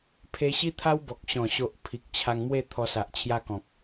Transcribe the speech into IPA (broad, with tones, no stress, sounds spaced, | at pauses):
pʰ e˧ ɕ i˦ t̪ʰ a˦ w b ɔ˨ k̚ ɕ ɔ̃˨˩ ɕ o˨ ʔ pʰ i˨ k̚ t͡ɕʰ a˧ ŋ m w e˥˧ t̪ʰ ɔ˧ s a˨ ʔ t͡ɕʰ j a˦ k ɔ̃˨ k̚